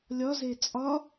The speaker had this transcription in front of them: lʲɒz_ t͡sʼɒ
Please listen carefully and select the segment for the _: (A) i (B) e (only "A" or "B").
B